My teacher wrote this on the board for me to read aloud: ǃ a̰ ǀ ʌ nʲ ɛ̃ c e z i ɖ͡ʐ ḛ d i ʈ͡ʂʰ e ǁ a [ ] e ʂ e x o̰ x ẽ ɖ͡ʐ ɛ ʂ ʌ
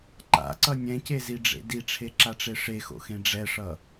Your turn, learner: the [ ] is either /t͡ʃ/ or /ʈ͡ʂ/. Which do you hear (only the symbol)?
ʈ͡ʂ